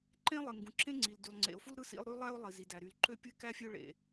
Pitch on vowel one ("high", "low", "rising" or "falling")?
high